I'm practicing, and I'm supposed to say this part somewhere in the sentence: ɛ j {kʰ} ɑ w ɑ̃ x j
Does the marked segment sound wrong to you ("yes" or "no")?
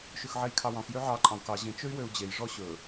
no